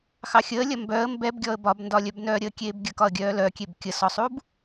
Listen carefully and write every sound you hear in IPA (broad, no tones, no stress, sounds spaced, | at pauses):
x ɑ xʲ əː lʲ ɐ m b œ ə̯ m b ɛ b ɡʲ ɔ ə̯ b ɒ b n d ɒ lʲ œ b n œː ɾʲ əː kʲ eː b ɡʲ ə k ɒ ə̯ ɡʲ œː l œ kʲ e b kʲ ə s ɔ sˤ u b